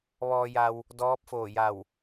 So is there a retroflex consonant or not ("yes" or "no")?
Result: no